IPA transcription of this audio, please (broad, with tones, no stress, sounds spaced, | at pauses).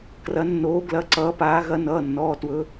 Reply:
k r ɐ˨˦ nː oː˨˦ ɡ l ɐ˨˦ ǀ ʌː˨˦ p aː˨˦ ɣ ɐ˨˦ n ʌː˩˧˩ nː ɔː˩˧˩ t w ɵ˨˦